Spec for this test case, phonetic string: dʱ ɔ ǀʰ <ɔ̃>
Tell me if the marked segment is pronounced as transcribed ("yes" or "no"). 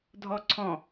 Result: yes